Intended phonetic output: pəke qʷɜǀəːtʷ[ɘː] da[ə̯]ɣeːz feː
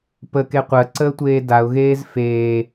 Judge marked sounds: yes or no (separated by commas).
no, no